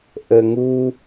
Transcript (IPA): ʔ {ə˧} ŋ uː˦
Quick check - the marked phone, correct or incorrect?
correct